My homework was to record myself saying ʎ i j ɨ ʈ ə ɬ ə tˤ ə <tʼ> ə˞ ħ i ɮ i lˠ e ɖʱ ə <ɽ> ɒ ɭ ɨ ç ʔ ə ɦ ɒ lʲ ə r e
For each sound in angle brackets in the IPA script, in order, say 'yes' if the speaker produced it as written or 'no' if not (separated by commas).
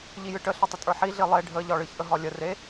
yes, no